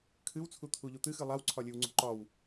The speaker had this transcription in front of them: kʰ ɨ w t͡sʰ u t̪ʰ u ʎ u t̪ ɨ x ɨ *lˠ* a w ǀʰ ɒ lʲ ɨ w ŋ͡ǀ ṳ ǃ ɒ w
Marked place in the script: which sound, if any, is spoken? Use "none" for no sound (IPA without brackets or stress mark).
lˠ